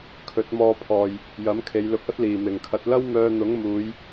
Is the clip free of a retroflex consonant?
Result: yes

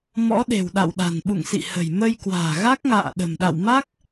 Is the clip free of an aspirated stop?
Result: yes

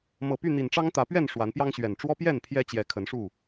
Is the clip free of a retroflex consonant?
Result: no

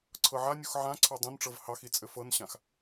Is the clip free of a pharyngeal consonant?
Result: no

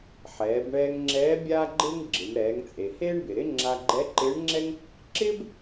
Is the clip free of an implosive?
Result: yes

